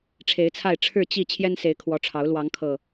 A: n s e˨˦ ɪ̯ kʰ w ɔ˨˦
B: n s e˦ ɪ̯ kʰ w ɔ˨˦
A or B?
A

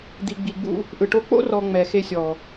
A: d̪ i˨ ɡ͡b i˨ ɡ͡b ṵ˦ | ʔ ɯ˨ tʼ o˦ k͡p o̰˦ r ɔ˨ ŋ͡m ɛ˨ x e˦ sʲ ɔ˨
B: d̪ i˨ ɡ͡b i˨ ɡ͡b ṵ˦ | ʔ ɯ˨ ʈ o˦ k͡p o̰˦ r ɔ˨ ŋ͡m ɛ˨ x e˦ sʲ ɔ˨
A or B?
B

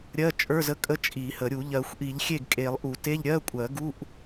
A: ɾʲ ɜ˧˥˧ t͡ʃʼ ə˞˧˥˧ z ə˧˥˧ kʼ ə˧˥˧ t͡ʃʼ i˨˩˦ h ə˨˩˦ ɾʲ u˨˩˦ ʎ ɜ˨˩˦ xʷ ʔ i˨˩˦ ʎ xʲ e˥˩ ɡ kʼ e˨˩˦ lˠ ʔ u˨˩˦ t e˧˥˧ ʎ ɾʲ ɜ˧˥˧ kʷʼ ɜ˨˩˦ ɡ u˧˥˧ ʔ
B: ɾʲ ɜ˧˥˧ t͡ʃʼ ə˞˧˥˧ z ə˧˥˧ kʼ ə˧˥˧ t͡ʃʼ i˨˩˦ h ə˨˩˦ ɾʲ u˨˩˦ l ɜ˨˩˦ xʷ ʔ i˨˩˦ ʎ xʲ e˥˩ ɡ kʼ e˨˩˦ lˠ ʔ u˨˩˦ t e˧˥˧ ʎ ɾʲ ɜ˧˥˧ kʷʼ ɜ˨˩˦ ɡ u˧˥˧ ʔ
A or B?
A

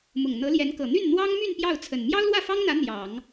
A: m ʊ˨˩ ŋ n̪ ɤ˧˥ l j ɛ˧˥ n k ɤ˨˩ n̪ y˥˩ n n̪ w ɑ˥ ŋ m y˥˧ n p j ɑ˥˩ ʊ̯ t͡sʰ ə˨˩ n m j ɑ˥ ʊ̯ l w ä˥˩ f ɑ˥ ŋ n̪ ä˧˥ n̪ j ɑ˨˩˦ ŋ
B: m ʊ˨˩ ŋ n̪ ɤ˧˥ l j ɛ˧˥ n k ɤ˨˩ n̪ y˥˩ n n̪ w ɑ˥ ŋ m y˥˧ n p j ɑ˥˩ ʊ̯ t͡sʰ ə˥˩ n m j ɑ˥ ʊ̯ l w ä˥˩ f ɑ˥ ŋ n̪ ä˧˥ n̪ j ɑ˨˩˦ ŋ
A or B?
A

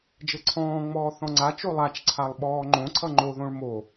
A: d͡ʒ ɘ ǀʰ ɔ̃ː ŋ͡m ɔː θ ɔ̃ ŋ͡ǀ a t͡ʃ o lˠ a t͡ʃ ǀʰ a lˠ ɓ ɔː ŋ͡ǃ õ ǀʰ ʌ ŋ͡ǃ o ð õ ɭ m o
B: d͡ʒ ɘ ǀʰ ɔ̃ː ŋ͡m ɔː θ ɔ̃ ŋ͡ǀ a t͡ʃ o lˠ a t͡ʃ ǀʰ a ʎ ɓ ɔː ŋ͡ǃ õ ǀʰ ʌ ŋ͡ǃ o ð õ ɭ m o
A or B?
A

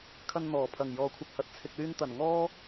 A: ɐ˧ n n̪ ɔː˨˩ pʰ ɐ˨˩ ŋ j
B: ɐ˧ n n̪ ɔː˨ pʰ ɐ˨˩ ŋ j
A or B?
A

